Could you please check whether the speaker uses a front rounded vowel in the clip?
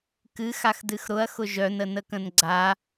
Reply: yes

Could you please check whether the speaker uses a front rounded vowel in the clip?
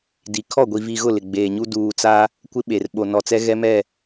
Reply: no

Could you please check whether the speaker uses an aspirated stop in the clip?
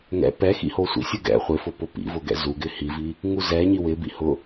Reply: no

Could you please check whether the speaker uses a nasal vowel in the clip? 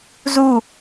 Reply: no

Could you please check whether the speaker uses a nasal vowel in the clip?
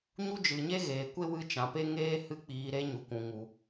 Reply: yes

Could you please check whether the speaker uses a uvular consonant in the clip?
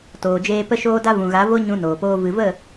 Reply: no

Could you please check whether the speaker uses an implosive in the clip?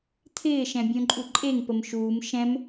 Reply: no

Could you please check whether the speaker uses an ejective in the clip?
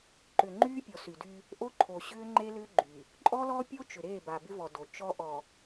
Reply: yes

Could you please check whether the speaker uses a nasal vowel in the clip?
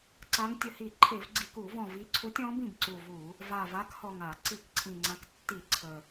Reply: yes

